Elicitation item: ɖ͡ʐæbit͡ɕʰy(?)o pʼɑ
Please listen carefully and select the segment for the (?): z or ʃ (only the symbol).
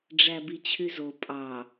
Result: z